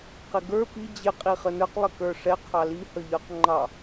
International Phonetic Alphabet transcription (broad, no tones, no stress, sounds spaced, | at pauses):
q ɪ ɡ ə˞ p i d͡ʑ ɪ qʼ i χ ə n ə˞ q lˠ ɪ k ə˞ ʂ ɛ qʰ ɑ l i h ə ʎ ə˞ q ŋ͡ǃ ɑ